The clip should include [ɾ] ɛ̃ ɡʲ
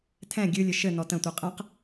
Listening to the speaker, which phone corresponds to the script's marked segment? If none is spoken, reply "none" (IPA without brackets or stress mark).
tʰ